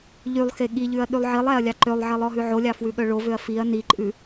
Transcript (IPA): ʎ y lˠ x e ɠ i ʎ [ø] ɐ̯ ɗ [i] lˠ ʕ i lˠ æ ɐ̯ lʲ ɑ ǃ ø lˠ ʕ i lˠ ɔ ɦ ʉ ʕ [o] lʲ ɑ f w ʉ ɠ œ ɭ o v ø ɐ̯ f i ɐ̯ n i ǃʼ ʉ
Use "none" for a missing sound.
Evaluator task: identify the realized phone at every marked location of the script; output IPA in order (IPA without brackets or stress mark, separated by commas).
ʉ, y, o